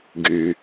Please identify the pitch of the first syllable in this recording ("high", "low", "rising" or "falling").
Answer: low